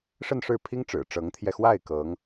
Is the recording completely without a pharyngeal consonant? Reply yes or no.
yes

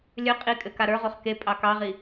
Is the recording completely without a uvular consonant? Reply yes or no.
no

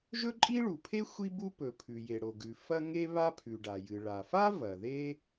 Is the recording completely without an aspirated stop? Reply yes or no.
no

